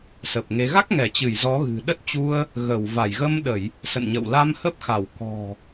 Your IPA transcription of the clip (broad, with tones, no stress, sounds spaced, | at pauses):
s ə˨˩ p̚ ŋ e˨˦ ɣ a˦˥ k̚ ŋ ɛ˧˩ t͡ɕ ɨ˧˩ j z ɔ˨˦ ɣ ɨ̤˨˩ ɗ ə˦˥ t̚ t͡ɕ u˧ ə̯ | ɣ ə˧˩ w v a˧˩ j ɣ ə˧ m ɗ ə˧˩˨ j | s ə̰˧˨ n ɲ ə̰˧˨ w l a˧ m h ə˦˥ p̚ x a˧˩ w k ɔ̤˨˩